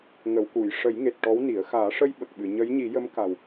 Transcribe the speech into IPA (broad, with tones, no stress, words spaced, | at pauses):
ŋə˨˩˨wku˨˩˨j ʂə˨˩˦jŋe˨˩t̚ ʈɔ˧˥wni˨˩˦ə̯ xaː˨˩˦ʂə˧j ɓə˨˩k̚ɓɨ˨˩˨ ɲə˧˥jɲi˨˩˦jə˧˥m ka˨˩w